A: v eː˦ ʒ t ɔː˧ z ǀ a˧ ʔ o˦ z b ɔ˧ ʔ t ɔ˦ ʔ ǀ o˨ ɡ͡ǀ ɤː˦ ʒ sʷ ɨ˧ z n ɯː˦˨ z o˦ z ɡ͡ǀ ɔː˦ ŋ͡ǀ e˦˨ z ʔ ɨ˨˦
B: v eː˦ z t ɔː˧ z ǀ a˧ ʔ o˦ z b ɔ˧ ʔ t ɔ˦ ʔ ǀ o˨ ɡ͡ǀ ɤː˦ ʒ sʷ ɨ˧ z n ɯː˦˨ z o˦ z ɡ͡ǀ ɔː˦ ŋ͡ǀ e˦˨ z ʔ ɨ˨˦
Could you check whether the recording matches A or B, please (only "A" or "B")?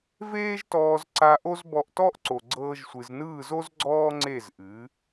A